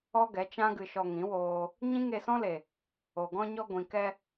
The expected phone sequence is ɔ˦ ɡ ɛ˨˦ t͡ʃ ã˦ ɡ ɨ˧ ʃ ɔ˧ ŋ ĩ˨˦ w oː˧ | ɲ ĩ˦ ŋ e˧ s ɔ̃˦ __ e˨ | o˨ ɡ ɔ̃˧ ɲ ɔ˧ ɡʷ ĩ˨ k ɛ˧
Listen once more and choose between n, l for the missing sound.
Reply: l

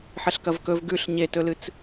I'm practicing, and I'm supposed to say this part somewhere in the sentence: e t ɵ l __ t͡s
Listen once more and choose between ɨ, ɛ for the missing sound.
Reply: ɨ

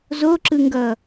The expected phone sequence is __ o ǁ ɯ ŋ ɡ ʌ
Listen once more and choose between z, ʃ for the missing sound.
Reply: z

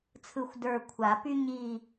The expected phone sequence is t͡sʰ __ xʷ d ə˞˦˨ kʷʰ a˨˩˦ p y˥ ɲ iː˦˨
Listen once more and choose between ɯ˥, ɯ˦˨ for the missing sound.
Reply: ɯ˦˨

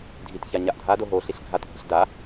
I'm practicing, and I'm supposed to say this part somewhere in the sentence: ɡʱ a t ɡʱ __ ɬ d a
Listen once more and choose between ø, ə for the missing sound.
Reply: ə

